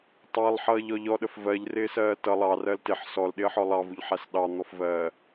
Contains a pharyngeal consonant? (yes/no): yes